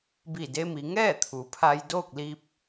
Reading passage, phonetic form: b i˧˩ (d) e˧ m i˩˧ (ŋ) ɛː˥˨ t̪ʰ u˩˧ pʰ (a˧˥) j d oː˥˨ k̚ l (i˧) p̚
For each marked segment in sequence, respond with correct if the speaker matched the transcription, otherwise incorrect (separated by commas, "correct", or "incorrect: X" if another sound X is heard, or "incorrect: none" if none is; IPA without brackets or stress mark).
correct, correct, incorrect: a˧, correct